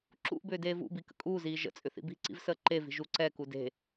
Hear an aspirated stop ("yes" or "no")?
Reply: no